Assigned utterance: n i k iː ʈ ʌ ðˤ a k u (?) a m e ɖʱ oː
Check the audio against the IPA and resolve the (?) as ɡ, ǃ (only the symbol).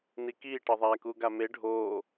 ɡ